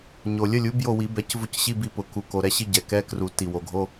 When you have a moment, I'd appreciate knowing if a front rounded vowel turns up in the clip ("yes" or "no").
no